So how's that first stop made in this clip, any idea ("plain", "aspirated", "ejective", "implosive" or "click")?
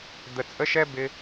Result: plain